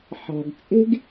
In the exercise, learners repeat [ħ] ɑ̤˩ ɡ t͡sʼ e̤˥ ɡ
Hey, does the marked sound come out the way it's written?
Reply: yes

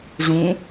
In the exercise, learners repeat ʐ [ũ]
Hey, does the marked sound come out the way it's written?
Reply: yes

